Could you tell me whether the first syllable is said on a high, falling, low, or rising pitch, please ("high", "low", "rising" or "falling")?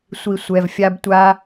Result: low